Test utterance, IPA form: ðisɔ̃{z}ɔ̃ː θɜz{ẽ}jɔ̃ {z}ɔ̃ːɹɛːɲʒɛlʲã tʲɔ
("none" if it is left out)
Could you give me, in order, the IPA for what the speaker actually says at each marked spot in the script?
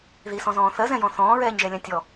z, ɛ̃, θ

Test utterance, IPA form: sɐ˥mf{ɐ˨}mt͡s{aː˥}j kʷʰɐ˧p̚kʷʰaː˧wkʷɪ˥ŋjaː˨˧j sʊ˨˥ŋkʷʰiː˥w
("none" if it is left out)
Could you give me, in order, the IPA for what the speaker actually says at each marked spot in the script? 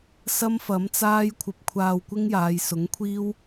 ɐ˨˥, aː˥

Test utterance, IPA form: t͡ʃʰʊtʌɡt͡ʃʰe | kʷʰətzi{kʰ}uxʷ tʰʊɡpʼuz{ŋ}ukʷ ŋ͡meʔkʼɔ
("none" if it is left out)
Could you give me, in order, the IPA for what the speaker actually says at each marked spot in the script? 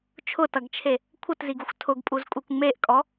ɡ, kʼ

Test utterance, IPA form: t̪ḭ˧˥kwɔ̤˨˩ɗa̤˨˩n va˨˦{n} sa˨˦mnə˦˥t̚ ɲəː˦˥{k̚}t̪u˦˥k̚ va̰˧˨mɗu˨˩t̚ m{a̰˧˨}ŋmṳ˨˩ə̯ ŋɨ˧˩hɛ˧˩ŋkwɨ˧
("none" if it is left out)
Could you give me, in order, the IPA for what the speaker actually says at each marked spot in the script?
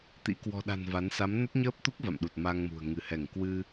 n, p̚, a˧

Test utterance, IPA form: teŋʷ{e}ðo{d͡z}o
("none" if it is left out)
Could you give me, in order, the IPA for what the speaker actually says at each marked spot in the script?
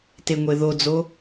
e, d͡z

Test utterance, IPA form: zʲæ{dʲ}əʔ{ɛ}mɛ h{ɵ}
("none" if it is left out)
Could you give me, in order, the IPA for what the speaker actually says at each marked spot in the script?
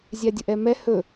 dʲ, ɛ, ɵ

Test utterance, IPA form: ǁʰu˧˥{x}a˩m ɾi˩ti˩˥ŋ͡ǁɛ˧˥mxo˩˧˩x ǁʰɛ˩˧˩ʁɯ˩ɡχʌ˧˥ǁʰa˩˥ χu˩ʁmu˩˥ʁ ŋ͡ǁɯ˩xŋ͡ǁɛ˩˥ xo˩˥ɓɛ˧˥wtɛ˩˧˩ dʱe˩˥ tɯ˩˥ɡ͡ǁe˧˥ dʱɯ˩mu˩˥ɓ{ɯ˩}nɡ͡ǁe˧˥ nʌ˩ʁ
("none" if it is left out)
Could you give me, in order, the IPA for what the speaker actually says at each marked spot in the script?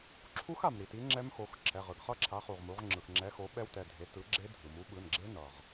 x, ɯ˩˧˩

